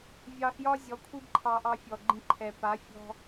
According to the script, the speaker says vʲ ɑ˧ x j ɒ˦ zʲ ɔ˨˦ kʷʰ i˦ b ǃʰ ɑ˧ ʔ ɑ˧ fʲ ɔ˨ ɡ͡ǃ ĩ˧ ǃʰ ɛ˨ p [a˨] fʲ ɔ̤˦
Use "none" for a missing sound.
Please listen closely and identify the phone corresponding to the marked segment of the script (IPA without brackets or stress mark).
a˨˦